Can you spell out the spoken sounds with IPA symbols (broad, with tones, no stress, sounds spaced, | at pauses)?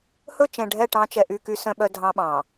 h ɵ˦˨ t͡ʃ ɛ̃˨ ɖʱ ɛ˦˨ ʈ ɑ̃˦ t͡ʃ ɛ˨ ʔ y˦˨ k y˦ s œ̃˦ ɓ œ˦ dʱ ɑ̃˦ ɓ ɑ̃˨